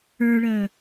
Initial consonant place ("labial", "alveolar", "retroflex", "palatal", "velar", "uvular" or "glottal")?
retroflex